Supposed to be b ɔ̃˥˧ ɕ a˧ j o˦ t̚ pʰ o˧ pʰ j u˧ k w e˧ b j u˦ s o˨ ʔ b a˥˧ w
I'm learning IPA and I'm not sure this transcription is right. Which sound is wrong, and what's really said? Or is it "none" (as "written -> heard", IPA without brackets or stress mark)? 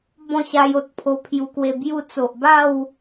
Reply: s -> t͡s